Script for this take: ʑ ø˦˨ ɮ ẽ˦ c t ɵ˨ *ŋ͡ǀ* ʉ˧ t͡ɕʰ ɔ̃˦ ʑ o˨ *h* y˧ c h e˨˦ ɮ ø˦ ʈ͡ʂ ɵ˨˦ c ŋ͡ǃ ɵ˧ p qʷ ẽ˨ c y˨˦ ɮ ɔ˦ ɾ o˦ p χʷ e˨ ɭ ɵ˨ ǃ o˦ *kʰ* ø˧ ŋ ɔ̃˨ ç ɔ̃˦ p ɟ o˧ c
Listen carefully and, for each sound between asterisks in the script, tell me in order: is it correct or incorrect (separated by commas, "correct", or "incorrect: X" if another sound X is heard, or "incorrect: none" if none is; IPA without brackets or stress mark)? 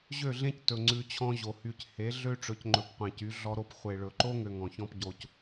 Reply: correct, correct, incorrect: ŋ